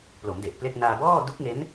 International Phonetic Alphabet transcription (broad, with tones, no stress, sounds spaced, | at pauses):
p l o˩˦ m d e˨˩ ʔ p l e˥˩ k̚ n aː˧ b ɔː˥˩ d u˦˥ k̚ ŋ e˦˥ n